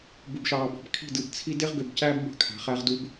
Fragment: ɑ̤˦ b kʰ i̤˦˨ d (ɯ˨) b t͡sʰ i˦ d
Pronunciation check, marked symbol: correct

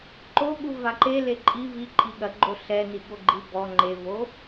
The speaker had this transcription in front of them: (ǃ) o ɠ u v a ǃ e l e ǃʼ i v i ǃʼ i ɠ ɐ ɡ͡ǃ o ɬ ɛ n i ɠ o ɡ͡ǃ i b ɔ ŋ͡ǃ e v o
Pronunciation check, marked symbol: correct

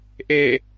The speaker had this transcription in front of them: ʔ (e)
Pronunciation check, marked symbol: correct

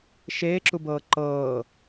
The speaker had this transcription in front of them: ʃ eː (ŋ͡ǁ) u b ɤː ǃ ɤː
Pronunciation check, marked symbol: incorrect: ǁ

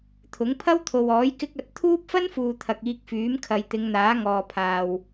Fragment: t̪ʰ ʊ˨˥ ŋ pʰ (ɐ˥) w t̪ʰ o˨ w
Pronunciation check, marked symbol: correct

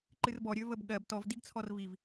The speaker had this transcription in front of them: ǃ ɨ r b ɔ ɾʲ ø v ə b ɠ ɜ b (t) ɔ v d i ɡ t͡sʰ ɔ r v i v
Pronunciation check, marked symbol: correct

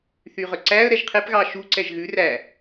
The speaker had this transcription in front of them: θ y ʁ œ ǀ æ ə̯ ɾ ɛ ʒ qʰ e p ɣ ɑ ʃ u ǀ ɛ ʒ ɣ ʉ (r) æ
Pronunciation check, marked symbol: correct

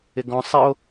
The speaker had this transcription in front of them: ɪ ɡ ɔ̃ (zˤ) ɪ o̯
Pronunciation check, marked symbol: incorrect: sˤ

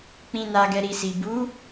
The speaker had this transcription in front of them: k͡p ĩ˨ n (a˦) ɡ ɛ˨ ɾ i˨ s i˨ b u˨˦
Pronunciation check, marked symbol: incorrect: a˨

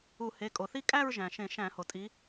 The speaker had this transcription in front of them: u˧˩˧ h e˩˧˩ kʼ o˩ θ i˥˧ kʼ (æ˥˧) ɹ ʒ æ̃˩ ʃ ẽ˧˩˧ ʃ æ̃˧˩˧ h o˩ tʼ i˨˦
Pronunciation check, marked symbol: correct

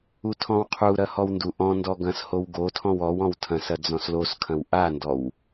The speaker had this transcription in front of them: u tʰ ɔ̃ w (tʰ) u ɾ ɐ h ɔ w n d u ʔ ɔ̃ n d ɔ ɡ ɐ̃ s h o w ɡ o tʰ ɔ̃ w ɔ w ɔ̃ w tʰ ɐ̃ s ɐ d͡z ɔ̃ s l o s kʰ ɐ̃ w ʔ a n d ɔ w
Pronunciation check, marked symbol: incorrect: qʰ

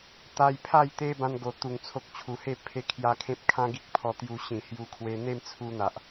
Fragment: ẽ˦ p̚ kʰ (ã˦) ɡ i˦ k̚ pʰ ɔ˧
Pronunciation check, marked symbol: correct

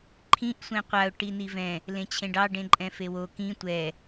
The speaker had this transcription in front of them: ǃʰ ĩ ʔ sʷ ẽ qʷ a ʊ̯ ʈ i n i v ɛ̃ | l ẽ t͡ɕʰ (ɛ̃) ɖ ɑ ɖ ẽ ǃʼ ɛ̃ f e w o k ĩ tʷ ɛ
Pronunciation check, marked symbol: incorrect: ẽ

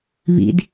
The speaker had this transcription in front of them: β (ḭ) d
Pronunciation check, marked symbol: correct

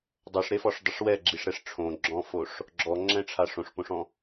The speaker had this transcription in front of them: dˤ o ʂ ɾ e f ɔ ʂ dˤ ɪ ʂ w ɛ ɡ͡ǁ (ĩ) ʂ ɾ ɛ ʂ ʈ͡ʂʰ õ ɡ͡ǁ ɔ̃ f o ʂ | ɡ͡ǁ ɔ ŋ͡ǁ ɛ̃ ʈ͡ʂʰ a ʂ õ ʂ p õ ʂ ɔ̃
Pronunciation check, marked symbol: incorrect: i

